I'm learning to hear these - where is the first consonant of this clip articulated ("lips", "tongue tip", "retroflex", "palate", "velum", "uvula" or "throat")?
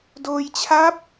tongue tip